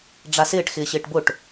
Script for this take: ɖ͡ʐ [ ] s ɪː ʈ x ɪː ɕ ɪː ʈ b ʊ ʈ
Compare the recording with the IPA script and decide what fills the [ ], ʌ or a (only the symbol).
a